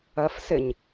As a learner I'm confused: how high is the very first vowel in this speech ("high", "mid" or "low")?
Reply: mid